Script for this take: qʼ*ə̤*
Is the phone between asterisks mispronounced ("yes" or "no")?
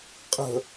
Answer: no